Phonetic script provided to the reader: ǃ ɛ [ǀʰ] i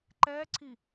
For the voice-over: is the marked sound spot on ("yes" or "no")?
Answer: yes